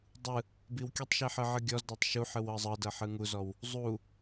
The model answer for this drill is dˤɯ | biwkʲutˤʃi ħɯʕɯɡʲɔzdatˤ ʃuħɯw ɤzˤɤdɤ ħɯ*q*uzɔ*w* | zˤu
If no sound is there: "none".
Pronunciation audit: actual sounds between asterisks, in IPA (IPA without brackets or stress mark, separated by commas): ŋ, w